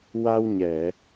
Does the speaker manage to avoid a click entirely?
yes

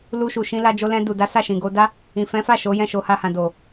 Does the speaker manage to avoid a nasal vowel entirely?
no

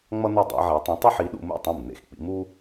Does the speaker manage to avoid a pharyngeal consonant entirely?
no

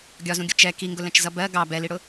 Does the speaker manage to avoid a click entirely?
yes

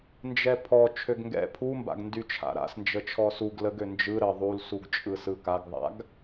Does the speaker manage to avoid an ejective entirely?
no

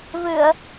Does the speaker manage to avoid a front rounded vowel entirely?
yes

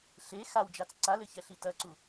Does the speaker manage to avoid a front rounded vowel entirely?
yes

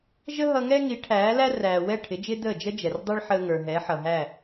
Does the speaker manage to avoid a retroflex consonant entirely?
no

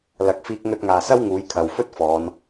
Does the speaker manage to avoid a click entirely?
yes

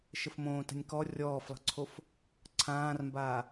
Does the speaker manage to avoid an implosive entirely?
yes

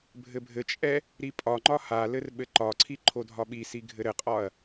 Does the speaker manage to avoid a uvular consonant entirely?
no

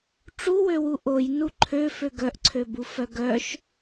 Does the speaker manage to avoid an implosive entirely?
yes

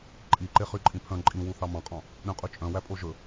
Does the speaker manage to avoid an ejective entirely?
no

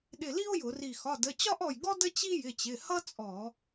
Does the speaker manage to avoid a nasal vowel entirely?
yes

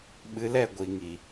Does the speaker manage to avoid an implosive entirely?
no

